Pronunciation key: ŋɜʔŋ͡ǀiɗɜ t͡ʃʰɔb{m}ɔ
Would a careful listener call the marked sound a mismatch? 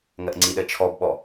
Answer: yes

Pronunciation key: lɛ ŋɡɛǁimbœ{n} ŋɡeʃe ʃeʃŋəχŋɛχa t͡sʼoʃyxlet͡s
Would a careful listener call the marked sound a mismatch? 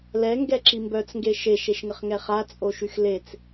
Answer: yes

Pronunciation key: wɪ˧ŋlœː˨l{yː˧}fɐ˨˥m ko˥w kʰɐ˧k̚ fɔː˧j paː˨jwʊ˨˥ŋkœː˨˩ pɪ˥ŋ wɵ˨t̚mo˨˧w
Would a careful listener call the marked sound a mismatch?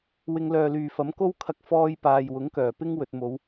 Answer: yes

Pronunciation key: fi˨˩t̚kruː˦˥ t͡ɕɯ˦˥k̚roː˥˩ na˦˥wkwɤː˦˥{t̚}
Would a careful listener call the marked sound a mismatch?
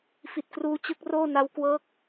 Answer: yes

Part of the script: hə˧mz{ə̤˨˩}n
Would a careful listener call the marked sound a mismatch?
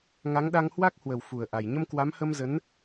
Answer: yes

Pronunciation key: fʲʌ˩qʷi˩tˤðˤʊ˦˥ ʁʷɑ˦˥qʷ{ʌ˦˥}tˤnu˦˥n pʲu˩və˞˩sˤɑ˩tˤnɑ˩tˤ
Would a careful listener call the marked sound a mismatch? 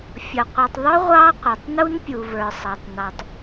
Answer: yes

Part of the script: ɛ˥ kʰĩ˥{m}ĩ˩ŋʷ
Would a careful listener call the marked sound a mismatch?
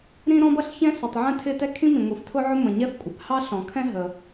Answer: no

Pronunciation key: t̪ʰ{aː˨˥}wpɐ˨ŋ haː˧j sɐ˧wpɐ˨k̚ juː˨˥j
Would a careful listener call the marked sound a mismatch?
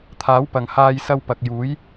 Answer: no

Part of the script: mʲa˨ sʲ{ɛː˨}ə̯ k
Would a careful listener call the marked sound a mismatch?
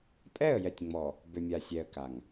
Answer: yes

